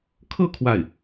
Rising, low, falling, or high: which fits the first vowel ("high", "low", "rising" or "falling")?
falling